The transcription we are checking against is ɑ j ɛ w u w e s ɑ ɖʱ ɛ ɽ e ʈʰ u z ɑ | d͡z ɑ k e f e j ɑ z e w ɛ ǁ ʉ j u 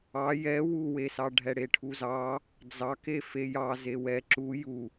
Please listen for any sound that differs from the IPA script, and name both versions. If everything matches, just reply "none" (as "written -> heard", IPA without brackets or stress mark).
ʉ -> u